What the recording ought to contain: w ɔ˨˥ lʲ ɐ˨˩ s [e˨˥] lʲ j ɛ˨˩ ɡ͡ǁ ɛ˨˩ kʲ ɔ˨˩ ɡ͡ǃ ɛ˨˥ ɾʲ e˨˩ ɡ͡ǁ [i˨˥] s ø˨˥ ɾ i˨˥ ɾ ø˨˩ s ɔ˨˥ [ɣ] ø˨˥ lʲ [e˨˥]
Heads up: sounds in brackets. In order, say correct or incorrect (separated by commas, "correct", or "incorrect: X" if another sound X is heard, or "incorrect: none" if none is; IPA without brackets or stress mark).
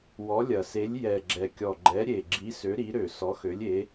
correct, correct, incorrect: x, correct